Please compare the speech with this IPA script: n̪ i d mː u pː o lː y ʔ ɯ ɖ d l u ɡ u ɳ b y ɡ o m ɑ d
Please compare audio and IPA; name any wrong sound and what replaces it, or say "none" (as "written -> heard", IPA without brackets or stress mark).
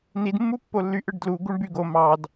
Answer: none